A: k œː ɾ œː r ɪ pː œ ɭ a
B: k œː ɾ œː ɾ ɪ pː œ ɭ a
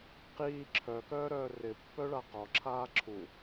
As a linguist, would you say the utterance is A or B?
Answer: A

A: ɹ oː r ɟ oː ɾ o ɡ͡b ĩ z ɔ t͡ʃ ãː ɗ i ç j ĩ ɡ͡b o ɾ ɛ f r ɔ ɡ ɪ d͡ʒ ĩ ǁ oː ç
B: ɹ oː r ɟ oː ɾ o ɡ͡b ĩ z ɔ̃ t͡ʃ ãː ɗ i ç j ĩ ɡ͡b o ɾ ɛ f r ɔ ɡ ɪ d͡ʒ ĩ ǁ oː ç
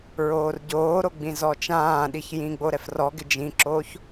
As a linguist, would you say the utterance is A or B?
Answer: A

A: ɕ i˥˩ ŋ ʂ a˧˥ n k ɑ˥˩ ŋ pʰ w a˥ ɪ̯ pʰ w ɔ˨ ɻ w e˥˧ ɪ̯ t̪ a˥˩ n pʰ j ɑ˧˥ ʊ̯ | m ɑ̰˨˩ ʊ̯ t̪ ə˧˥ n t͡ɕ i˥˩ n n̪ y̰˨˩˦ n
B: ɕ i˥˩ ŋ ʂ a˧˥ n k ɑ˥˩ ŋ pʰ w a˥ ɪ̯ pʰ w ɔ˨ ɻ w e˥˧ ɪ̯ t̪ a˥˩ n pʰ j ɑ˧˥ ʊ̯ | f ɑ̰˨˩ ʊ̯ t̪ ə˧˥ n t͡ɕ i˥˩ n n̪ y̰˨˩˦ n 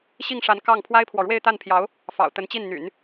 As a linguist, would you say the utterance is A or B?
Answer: B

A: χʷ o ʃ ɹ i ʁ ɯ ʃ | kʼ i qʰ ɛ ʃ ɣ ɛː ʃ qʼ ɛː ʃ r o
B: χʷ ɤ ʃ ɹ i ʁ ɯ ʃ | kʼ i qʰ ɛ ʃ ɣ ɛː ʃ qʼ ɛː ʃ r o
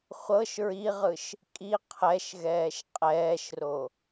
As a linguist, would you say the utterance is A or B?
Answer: B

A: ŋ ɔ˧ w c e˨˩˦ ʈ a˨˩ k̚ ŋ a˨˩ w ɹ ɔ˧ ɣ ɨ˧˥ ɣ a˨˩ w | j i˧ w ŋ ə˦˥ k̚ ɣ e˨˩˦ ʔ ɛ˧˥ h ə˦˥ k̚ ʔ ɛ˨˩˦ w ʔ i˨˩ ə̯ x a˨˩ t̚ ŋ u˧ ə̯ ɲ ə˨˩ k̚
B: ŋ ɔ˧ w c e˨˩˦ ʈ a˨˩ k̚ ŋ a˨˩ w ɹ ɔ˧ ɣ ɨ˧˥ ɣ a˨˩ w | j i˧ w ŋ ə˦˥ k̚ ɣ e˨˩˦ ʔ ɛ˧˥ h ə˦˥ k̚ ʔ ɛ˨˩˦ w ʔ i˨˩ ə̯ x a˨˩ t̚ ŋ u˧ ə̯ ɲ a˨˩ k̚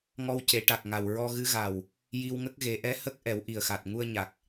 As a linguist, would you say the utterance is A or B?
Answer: B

